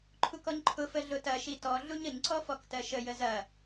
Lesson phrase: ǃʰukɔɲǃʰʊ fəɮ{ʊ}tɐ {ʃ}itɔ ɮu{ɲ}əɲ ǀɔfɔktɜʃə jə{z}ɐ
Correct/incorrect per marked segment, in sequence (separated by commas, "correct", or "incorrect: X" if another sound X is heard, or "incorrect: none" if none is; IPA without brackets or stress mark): correct, correct, correct, correct